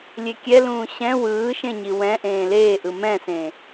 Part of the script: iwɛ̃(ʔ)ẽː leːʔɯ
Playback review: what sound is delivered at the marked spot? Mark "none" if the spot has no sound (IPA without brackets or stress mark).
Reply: ʔ